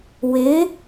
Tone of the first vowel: rising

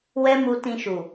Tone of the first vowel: high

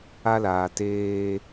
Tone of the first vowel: high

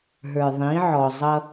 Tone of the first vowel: low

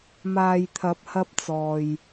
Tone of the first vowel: low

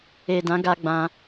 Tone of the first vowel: low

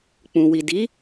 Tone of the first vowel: low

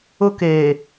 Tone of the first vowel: high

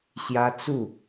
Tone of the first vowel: high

